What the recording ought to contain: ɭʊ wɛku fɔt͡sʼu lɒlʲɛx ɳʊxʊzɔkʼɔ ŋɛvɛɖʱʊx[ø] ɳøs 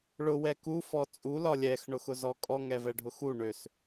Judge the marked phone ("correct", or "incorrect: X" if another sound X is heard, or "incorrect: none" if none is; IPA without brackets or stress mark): incorrect: u